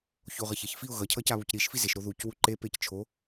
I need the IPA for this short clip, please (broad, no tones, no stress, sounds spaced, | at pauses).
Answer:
ç o ʁ ʌ ç e ç f i ʊ̯ ɣ ʌ cʰ ʌ c a β u c ɾ i ʃ f i z e ʃ ɾ o ð u c w u ǃ e p e c t͡ʃʰ o